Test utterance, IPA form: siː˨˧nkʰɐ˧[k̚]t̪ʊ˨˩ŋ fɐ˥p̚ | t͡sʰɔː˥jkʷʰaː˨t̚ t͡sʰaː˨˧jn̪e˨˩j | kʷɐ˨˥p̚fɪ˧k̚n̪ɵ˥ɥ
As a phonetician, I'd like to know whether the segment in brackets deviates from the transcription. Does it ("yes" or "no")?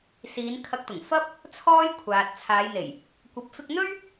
no